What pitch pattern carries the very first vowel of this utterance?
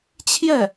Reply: falling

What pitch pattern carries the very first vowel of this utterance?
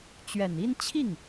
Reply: low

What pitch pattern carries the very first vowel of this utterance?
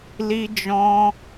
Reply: high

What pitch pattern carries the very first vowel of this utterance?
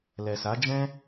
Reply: low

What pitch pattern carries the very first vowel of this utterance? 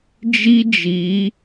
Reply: high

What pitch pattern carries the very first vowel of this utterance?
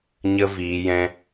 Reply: high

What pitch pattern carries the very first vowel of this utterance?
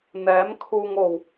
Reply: rising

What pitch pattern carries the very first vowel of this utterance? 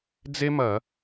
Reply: high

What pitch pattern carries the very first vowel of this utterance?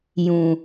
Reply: low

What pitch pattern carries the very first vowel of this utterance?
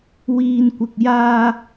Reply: low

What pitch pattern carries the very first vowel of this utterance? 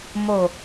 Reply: low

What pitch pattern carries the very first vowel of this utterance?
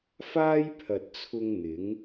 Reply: high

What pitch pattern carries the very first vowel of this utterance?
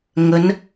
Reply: rising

